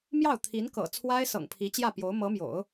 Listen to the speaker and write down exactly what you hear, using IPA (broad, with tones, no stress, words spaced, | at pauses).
mjɑ˥˩ʊ̯ t̪ʰi˧˥nkɤ̰˨˩ t͡sʰwa˥ɪ̯sɤ̰˨˩ŋ pʰi˧˥t͡ɕjä˥˩pjo˧˥ʊ̯ mɤ˧˥mjo̰˨˩˦ʊ̯